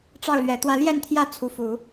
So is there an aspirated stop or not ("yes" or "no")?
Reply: yes